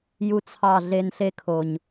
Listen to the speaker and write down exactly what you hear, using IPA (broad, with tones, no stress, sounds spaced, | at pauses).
j u˦ t͡sʰ ɑ˦˨ ɮ e˧ n ɬ e˦ kʰ o˨ ɲ